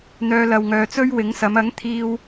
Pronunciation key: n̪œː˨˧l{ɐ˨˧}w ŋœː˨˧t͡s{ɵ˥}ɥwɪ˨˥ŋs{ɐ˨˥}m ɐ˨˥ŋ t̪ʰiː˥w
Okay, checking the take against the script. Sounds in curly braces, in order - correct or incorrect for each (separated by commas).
incorrect, correct, correct